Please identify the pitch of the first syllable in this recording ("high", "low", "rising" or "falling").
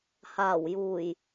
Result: low